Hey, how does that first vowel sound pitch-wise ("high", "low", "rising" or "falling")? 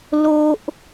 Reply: high